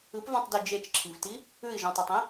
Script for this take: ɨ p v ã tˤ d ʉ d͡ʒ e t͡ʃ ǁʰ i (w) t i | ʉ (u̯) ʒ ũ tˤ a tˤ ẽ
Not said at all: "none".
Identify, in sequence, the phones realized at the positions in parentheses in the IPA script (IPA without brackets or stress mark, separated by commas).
v, i̯